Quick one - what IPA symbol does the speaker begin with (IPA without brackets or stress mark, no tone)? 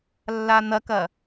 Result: lː